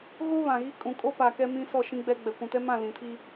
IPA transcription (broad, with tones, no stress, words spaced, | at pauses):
ɣo˦βã˨ɣi˦ kʼũ˨ kʼo˦pa˨ kɛ˦mĩ˦sɔ˦˨ ʃĩ˦ɡ͡bɛ˦ ɡ͡bɛ˨kʷũ˨tɛ˦mã˦˨ lĩ˨tʰi˦